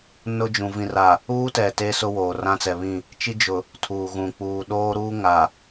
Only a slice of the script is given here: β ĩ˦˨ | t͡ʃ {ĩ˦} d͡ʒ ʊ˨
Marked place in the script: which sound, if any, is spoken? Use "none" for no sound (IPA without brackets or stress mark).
i˦